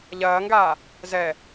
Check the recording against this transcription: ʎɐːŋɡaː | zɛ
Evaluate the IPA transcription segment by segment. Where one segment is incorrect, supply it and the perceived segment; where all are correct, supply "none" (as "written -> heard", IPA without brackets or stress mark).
none